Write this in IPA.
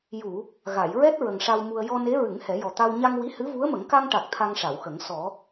ju˨˩˨ | ɣa˨˩˨jɹɛ˦˥t̚ ɹə˨˩ŋʂa˧w mu˧ə̯ jɔ˧ne˧˥ ɹɨ˨˩˦ŋ hɛ˨˩˦jɔ˨˩t̪a˧w ɲa˧ŋwi˧˥hɨ˧˥ vu˧˥ə̯mə˨˩˦ŋ ka˧ŋʈa˨˩k̚ t̪ʰa˧ŋʂa˨˩˨wxə˨˩˦ŋ sɔ˨˩˦

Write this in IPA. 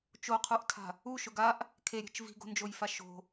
t͡ʃoqʰuʔtʰa̤ | u ʃʊɡaʔ | kʰeɾʲe̤t͡ʃ vi̤ɡo̤nd͡ʒojfa ʃo̤

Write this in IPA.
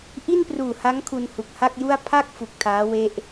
ʔi˥˩npruː˨˩ha˦˥ŋ kʰu˧nhu˨˩k̚ha˥˩k̚ju˥˩a̯ pʰa˥˩k̚ fu˨˩k̚tʰaː˦˥we˦˥ʔ

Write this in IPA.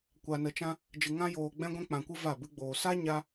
kʷa˧nə˧t͡ʃã˦ | d͡ʒɨ˧ŋã˦ joː˧ ɡ͡bɛ̃˦ɡʷɛ̃˦k͡pã˧kʷɨ˦ va˦˨bɨ˦ɡ͡boː˧ sa˦ ɲa˦

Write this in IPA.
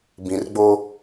bĩ˨rɡ͡bo˦

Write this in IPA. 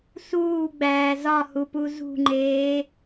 suːɡ͡bæː zɒhupu zṳŋ͡ǃeː

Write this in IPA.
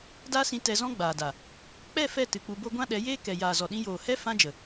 da˦sĩ˧ tɛ˧zɔ̃˦ɡ͡baː˨da˨ | k͡pɛ˦˨ fɛ˦˨ tɨ˨k͡pu˧bo˦ ɡʷã˦ɗɛ˨˦ jeː˦ kɛ˨jaː˨zɔ˨ɗĩ˧ joː˨hɛ˦ fã˦d͡ʒə˨

